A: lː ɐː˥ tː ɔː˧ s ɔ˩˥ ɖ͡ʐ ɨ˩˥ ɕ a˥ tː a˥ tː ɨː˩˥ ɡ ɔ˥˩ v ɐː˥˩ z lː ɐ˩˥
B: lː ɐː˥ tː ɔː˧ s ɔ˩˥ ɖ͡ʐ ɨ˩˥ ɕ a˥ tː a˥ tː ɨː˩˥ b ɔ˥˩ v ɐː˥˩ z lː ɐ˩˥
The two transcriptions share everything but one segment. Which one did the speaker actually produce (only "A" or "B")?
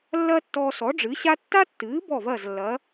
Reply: B